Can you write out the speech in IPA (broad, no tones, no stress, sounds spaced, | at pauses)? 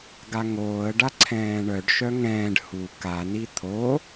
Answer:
ɡ a ŋ oː ə̯ ɖ a ǀʰ ɛ̃ː ɳ œ ɖ ʃ œ ŋ ɛ̃ː ɖ h u k a n i t̪ʰ o